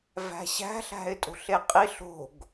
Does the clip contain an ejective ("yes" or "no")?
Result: yes